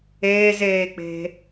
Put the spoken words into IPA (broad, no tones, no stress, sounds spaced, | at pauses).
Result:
eː z eː k͡p e̤